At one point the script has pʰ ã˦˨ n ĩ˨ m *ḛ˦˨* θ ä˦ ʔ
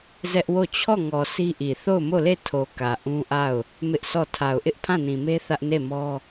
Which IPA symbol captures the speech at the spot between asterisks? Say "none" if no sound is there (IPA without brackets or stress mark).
e˦